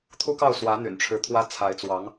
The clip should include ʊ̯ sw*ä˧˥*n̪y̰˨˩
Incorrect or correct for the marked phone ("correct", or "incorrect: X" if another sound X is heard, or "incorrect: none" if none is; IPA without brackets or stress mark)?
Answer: correct